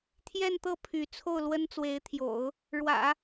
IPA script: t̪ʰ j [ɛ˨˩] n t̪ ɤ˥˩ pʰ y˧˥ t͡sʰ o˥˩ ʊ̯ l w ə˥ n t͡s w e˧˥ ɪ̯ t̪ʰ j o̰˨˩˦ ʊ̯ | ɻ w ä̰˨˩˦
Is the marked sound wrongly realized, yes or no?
yes